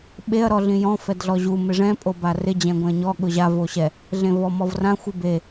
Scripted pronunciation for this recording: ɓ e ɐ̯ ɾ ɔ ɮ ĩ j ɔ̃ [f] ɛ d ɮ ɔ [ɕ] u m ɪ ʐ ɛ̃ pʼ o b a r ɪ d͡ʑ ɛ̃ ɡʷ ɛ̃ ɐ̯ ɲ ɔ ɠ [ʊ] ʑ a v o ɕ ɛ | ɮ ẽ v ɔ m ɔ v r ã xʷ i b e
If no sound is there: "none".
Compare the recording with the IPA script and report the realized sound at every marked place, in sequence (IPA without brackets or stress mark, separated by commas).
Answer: f, ʑ, ʊ